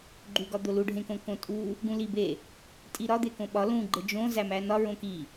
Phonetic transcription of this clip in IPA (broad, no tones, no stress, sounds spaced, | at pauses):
ɡ͡ǃ u ɡ ɒ d̪ o l u ɖʱ ẽ k õ k õ tʼ u | ɡ ũ l i b e | tʼ i ɾ ɒ d̪ e k õ ɓ ɒ l ũ ɡ͡ǃ e d͡ʒ õ z æ m æ n ɒ ɹ õ k i